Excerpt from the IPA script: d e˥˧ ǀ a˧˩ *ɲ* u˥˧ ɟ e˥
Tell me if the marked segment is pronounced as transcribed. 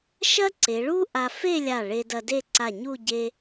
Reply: yes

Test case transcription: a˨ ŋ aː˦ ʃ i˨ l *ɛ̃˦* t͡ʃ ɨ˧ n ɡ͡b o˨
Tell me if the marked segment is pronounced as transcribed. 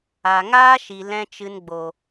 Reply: yes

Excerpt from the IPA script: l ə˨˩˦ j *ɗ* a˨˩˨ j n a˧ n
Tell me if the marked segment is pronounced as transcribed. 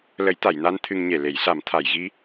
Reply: no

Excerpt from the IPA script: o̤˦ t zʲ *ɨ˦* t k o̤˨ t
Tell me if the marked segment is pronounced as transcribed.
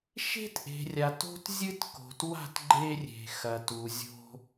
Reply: yes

